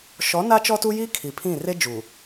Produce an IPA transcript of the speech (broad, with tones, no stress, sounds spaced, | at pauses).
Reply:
ʃ ɔ˨˦ n a˦ t͡ʃ ɔ˦ t u˦ j i˦ kʰ i˨ pʰ ĩ˦˨ r e˦ d͡ʒ u˨